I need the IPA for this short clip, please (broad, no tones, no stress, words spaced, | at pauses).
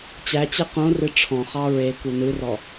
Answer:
t͡ɕæt͡ɕe qõrɨ ʈ͡ʂʰɔ̃χɑ ɹeku nɨrɔ